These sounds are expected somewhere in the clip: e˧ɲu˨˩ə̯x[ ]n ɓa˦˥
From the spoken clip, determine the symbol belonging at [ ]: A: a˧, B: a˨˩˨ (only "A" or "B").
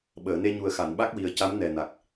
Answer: B